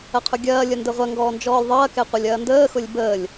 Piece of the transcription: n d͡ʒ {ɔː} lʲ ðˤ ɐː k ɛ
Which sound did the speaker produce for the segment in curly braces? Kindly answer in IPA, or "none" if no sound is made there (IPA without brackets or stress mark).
ɔː